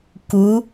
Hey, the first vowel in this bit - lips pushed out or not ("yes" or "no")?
yes